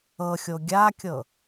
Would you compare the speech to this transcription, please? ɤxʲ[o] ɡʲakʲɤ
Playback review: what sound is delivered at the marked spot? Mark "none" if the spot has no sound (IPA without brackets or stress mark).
o